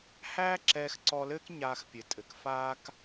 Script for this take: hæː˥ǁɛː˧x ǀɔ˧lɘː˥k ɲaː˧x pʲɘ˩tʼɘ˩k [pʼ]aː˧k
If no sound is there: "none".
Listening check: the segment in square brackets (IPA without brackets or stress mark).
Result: f